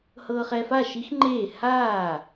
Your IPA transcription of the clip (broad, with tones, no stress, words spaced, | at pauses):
hɤː˧χɛ˧fa˥˩ ʃi˦˥xŋ͡ǃeː˥˩ haː˥˩